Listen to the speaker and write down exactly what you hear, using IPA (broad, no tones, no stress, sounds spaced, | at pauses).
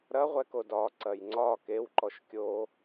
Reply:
ɾ ɐ ʁʷ ɛ k o d ɒ ǀ ɐ j ŋ͡ǀ ɒ k e w ǃ ɔ ʃ kʲ o